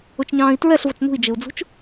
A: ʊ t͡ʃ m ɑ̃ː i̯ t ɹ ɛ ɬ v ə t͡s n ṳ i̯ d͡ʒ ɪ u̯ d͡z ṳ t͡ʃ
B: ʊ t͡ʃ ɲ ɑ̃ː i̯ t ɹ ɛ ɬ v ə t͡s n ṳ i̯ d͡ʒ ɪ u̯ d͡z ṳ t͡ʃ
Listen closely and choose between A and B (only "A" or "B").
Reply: B